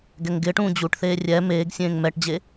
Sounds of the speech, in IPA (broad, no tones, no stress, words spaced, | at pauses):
ɡɛŋɡɪːʈũː d͡ʑuʈθeː rʲɛ meːɡsʲẽːŋ mɛʈd͡ʑe